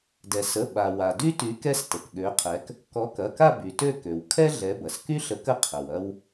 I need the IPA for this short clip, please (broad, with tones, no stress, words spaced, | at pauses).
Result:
dɛ˩ sə˩˧˩ ɓa˩wa˩dy˥ty˨˥ kɛ˥stə˩kɠø˨˥qʰɛ˨˥k | kɔ˨˥kɐ˩˧˩ka˥˧ by˩tø˥˧ kø˩w kʰɛ˥ ɮɛ˨˥bɐ˩s ky˥ɬə˨˥k ə˥qʰə˩wɐ˥w